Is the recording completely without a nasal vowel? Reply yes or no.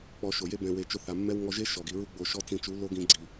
no